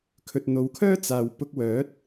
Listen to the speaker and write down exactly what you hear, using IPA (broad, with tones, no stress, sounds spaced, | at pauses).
kʰ ɵ˨ t̚ n̪ o˨˧ w kʰ œː˥ t͡s aː˨ w p ʊ˧ k̚ w œː˨˥ t̚